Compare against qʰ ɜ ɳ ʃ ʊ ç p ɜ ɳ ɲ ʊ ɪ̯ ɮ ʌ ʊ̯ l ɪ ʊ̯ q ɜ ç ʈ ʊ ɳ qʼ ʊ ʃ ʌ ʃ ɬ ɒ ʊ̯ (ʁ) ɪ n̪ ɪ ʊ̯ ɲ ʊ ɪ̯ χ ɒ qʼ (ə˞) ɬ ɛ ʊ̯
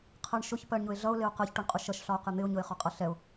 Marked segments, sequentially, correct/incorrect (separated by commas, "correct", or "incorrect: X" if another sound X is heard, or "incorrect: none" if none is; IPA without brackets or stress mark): incorrect: q, incorrect: ʌ